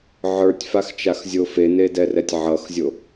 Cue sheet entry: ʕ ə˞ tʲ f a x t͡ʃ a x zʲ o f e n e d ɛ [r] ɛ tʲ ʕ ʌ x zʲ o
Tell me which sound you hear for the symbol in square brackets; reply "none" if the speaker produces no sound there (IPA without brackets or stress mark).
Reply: r